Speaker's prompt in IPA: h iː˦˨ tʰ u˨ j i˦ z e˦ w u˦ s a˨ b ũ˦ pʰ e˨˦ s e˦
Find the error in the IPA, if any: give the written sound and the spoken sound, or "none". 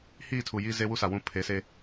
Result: b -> w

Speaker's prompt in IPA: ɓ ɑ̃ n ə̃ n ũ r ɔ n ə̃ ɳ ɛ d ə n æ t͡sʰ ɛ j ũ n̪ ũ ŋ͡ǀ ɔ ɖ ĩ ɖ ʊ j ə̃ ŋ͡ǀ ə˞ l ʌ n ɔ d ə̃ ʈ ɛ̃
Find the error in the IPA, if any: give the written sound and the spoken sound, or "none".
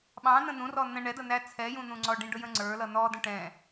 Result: none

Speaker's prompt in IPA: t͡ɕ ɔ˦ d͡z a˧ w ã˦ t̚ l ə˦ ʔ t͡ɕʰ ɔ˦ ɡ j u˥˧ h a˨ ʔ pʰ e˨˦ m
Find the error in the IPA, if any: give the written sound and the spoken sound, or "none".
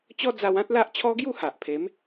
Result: ə˦ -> a˦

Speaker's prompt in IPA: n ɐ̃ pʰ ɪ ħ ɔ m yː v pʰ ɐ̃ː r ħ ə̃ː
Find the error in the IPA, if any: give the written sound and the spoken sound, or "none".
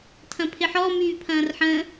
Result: n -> tʰ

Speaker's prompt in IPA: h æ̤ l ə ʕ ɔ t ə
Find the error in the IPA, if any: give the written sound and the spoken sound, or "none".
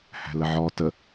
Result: none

